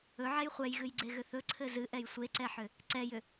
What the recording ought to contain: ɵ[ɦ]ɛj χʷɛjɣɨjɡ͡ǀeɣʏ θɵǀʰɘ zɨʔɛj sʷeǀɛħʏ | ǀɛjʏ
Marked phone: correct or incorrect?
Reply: incorrect